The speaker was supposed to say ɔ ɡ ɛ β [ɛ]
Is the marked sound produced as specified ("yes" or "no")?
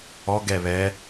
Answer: yes